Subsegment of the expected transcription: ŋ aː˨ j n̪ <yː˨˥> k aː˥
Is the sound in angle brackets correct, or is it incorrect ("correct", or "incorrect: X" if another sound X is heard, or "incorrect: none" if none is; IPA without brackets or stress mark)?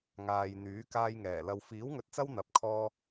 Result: correct